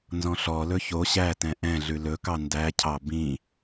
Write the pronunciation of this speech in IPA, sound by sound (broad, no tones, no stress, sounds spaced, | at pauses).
n z ɔ̃ ɬ ɔ l ɵ ç o ɕ æ t ɛ̃ ʔ ɛ̃ ɮ ʉ l ɵ k ɑ n d æ cʰ ɑ b ĩ